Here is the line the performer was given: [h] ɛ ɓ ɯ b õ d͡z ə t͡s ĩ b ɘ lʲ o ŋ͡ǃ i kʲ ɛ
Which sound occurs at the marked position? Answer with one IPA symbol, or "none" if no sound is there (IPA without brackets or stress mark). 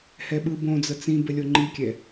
h